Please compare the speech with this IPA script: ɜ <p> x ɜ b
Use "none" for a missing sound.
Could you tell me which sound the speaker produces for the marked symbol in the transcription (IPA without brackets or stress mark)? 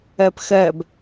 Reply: p